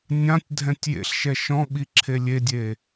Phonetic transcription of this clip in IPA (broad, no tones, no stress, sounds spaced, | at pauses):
nʲ ã tʲ dʱ ɛ̃ tʲ j ḛ ɬ ʃ ɛ ʃ ɔ̃ ɓ i ǁʰ e lʲ e dʲ e